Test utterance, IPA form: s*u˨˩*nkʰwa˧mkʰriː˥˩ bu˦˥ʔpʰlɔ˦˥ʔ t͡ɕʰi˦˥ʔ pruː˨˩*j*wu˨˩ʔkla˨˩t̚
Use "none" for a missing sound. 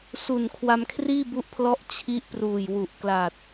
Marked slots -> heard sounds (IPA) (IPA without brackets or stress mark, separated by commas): u˨˩, j